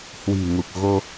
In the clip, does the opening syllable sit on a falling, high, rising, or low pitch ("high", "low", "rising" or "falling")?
low